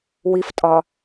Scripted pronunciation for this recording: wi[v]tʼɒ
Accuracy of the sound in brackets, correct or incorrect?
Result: incorrect